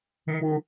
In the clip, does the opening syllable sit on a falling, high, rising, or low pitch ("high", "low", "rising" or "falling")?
high